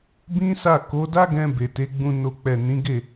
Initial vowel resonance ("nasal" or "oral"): nasal